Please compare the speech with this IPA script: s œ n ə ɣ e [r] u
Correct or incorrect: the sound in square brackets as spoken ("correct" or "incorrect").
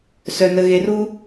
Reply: correct